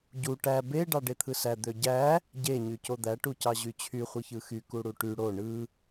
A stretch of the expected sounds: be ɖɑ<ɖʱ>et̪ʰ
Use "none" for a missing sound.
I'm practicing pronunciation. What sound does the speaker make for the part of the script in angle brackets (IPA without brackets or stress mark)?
ɖ